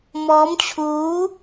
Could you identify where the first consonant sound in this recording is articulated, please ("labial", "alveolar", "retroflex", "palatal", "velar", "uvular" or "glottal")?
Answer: labial